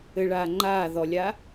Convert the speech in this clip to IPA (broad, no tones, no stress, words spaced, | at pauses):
ɘɭaː ŋ͡ǃaː ðɔlʲaː